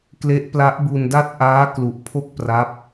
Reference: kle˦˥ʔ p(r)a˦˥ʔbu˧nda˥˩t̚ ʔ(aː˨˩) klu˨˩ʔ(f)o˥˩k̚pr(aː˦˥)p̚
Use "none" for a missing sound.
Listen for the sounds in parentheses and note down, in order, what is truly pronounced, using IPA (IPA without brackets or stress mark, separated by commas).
l, aː˦˥, pʰ, a˦˥